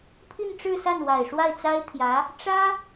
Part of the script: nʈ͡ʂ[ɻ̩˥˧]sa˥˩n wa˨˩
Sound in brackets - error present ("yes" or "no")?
no